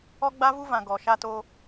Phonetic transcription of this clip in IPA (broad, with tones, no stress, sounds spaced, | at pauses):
ɔ˦ ɡ͡b a˦ v u˦ v ã˨ ɡ ɔ˨ ʃ a˦ t o˦